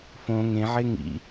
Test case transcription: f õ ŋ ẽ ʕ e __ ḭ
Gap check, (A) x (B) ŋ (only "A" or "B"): B